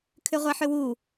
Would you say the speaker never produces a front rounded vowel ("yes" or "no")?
no